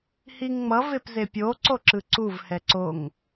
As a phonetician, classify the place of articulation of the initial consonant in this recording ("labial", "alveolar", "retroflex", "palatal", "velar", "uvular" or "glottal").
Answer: glottal